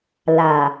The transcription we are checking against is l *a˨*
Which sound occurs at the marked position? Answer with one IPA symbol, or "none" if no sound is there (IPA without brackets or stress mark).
a˨